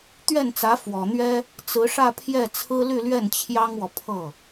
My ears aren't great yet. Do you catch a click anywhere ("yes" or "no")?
no